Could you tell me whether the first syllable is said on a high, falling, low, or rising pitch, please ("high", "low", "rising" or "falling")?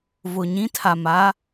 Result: low